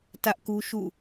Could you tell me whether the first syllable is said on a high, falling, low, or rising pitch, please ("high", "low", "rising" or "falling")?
high